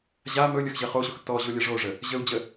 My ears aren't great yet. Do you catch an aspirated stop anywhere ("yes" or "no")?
no